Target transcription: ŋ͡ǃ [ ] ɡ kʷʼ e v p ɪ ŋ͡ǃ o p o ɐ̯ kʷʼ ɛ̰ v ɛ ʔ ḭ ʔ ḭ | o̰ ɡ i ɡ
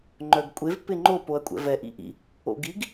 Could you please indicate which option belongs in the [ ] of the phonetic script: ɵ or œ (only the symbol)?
œ